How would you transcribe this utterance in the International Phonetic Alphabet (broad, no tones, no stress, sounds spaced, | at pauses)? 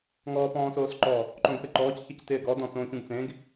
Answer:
ŋ ɔː p ɔ̃ː s oː s ǃ ɔ | ǃ õ ɡ p ɪ ǃ ɔː c ç ɪ c t ɪː ɡ ɔ d ɔ̃ t͡s õː ç ũ ɡ t͡s ẽ ɡ